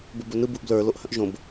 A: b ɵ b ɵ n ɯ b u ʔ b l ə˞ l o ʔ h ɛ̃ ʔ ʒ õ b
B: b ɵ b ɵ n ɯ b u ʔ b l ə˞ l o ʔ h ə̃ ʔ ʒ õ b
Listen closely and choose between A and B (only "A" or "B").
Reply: B